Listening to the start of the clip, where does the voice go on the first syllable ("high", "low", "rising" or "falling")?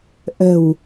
low